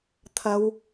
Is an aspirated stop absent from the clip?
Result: no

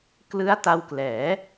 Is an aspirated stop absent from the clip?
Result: yes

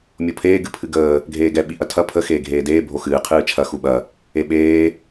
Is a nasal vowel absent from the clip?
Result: yes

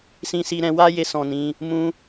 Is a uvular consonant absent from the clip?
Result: yes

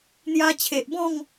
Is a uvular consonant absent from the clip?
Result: yes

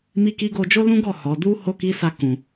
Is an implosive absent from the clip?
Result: yes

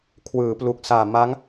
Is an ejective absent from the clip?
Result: yes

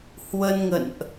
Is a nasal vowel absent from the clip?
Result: yes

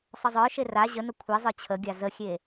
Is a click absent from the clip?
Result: yes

